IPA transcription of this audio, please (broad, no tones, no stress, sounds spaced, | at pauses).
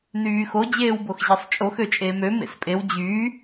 n yː x o d͡ʑ eː w b o x ʑ e sˤ t͡ʃʼ o x ø t͡ʃʼ eː m ø m ḛ s pʼ e w d͡ʑ yː